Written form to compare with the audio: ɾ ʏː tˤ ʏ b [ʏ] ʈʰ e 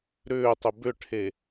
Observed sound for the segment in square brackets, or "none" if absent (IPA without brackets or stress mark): ʏ